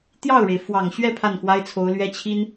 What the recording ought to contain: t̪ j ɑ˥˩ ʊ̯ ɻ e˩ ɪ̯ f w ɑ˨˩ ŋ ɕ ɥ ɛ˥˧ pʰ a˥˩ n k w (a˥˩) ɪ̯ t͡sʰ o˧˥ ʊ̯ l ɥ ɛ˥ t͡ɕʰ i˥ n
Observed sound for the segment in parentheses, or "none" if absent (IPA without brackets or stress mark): a˥